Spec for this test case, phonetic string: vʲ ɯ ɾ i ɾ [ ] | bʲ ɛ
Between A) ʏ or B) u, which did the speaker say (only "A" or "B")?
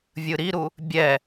B